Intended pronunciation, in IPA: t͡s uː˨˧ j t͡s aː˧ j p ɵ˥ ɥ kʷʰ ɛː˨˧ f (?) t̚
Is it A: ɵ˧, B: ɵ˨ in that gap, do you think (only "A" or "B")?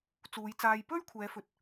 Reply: B